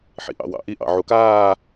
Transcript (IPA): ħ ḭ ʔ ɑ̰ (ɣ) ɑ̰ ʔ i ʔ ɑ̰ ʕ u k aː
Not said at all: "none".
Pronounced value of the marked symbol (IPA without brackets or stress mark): w